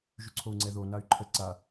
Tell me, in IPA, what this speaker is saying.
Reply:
ʒyǀʰou̯ŋ͡ǀɛðo nay̯ǃʰə ǀa

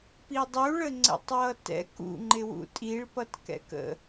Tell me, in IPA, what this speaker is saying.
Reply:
pidˤuɭə ŋ͡ǀɛ̰tˤwʌtɛ̰ kṵŋ͡ǃɪwṵ tʼiɭpʌt kɛ̰kə̰

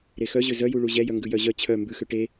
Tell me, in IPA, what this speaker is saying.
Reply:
ɾexœʑø zœju ɭuʑɛjœ ŋɡʉjœʑœ t͡ɕʰœ mbʉxø ʈe

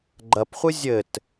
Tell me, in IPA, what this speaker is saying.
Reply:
ɡ͡ǃɐpχʷɨ zʲɘt

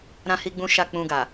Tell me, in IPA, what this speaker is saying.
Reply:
ɾã˦hi˦ɡ͡bũ˦ ʃa˦˨k͡pũ˧ɡa˨

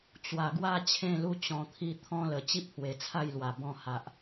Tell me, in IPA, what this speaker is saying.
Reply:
t͡ɕwa˨˩ɡwa˥˧ t͡ɕʰẽ˥˧lu˦ t͡ɕɔ̃˧t̪ʰi˦ t̪ʰɔ̃˦lə˨˩ t͡ɕi˦p̚hwe˨˩t͡sʰa˥˧jlwa˨˩ bɔ̃˥˧ha˨ʔ

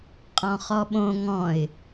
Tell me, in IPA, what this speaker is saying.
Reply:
qʼɔ̃χɔɓõ ŋɔ̃ɪ̯

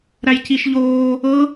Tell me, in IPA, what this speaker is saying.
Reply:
ɾæjciʃʎoː | ɤ

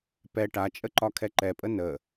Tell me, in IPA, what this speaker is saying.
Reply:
pɛ ʈat͡ʃʼə ǃɒkʰɛǃɛpʼə nə

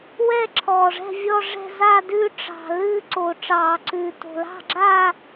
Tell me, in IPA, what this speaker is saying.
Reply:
wɛ˥˧ ǁʰɔː˨˩ʐɛ̤˥˧vʲɔ˥˧ʐɛ̤˥˧ zaː˥˧dʉː˥˧ ʈ͡ʂɑ̤˨˩ lɨː˥˧ǀo˨˩ ʈ͡ʂɑː˧˩˧ǀʉː˨˩ to̤˨˩lɑ̤˥˧ɡ͡ǁaː˥˧

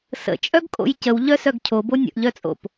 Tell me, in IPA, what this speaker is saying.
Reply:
sə̰ t͡ʃʼœɡkʼo̰jcəw ʎœsœɡcʰobo nʲə̰ʔʎœt͡sʼo̰p

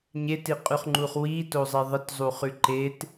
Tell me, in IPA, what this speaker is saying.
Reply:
ɲetiqʼʉχŋ͡ǃuχ witozˤe ðˤətzˤuχʉ ǃet

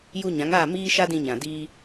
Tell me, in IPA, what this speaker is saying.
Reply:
ju˧ɲã˨˦ŋaː˦˨ miː˦ ʃa˦dĩ˧ ɲã˨ diː˧

